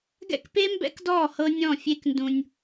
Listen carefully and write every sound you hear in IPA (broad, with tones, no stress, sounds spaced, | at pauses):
ɡ ɛ̰˦ k p e˦ m b ɛ̰˦ k d ɔː˦˨ h ɤ˦ nʲ ɔ̃˦˨ fʲ e˦ k n d ũ˦ nʲ